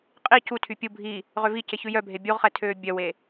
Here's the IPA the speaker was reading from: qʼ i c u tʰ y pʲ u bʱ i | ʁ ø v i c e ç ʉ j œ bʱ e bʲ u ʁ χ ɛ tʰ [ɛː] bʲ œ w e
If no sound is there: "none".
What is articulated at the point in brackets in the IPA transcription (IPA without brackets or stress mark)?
øː